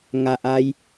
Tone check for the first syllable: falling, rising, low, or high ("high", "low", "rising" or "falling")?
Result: low